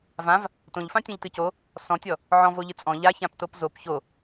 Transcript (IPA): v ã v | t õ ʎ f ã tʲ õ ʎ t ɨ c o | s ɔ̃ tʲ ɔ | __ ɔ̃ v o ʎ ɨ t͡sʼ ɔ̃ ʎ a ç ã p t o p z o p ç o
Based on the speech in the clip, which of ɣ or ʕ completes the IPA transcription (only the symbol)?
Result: ʕ